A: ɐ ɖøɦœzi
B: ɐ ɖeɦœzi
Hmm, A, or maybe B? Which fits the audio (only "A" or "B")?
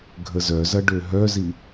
A